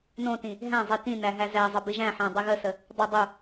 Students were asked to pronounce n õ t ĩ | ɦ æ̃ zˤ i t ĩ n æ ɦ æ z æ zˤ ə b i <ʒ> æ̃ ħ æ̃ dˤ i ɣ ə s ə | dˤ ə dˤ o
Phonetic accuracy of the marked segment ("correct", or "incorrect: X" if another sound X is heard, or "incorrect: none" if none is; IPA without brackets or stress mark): correct